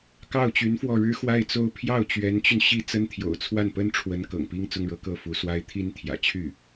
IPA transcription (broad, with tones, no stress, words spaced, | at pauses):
kɑ˥˩ʊ̯t͡ɕy˧˥nfwɔ˥˩ ɻɻ̩˥xwa˥˩ɪ̯t͡so˥ʊ̯ pʰjɑ˥˩ʊ̯t͡ɕɥɛ˧˥nt͡ɕy˧n ɕi˥t͡sə˥nt̪ʰjo̰˨˩ʊ̯t͡sʰwa˥˩n pə˥nʈ͡ʂʰwə˧˥n kɤ̰˨˩ŋpi˥ŋt͡sʊ˥ŋɻɤ˧˥ kɤ˥˩fu˧˥swa˥ɪ̯ t̪ʰi˥nt̪ʰjä̰˨˩ t͡ɕʰy˥˩